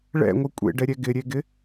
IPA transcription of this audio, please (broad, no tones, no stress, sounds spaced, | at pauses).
ɭ ɛ̰ ŋʷ ɨ kʷʼ ḛ ɖ ɛ ɾʲ ɛ ɡ ɪ ɾʲ e ɡ ɪ